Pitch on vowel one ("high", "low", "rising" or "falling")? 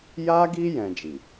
high